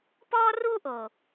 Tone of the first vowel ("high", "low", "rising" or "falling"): high